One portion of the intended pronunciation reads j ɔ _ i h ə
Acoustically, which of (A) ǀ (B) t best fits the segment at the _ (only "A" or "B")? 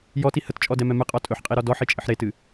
B